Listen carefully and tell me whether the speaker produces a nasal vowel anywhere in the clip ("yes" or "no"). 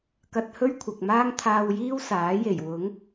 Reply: no